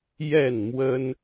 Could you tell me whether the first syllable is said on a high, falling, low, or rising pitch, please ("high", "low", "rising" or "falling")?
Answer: falling